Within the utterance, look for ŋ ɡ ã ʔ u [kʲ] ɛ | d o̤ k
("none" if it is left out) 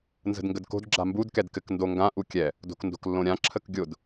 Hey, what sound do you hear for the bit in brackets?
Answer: kʲ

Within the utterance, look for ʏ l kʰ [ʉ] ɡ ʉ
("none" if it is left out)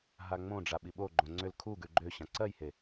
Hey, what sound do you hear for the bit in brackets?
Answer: u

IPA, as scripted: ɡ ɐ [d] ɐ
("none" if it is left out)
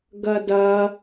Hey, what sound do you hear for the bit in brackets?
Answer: d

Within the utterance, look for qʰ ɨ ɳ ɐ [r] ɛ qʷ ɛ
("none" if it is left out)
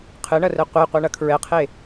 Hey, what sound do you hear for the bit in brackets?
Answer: r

